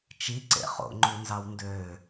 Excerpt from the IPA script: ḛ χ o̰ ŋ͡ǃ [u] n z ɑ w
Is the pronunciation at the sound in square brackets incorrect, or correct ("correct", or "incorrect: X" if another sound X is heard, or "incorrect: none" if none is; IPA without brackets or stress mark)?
correct